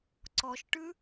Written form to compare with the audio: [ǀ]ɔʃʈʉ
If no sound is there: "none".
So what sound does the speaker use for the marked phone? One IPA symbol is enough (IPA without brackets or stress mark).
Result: ǀ